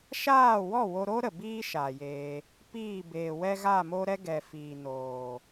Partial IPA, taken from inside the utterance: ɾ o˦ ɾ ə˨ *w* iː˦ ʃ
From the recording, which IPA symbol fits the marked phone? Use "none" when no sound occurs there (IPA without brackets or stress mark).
b